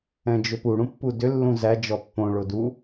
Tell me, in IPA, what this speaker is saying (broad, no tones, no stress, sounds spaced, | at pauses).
ɛ̃ d͡ʒ ʏ p u ɽ ũ pː u d ʏ lː ũ z æ d͡ʒ ɔ pː õ ɭ o d u